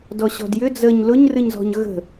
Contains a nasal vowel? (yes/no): no